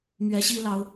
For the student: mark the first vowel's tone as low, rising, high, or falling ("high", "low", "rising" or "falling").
rising